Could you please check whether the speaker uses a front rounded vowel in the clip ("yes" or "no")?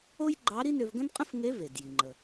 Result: yes